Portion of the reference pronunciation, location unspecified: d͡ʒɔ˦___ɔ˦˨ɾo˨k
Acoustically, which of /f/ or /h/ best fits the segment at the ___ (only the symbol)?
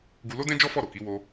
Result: f